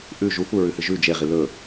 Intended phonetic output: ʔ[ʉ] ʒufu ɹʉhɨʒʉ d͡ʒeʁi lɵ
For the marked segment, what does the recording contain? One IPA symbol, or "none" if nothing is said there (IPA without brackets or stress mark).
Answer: ʉ